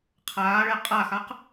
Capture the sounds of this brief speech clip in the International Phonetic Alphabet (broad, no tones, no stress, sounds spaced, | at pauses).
qʰ aː ɭ ɛ qʼ a x a q